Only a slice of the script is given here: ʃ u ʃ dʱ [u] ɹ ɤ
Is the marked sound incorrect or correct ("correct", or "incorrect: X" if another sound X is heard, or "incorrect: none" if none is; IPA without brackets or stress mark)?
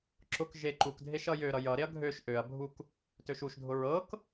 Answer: incorrect: ʊ